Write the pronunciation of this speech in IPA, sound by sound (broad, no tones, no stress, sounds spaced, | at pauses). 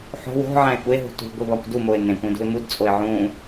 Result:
ħ o̤ w o̤ ʕ æ̃ ɪ̯ kʷ e ɦ ṳ t ṳ ɡʷ i β ɒ kʷ d u m o ɪ̯ n ẽ kʷ ẽ d ṳ ɪ̯ m u d t͡sʼ o ɪ̯ ʕ ũ